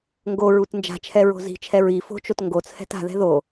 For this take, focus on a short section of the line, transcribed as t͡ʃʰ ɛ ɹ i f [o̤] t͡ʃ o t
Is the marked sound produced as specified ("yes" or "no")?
yes